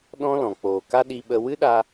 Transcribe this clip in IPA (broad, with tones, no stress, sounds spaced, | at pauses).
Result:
ɗ ɔ̃˦ l ɔ̃˨ k͡p oː˨ k a˦ ɗ i˧ ɓ ə˧ w ɨ˦ ɗ a˧